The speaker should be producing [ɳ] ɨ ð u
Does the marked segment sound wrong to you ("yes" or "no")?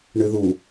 no